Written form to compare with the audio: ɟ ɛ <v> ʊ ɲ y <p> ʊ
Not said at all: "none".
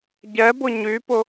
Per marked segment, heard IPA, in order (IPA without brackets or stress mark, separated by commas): b, p